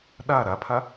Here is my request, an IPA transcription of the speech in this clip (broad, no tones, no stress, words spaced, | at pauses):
ɗa ɾapʰa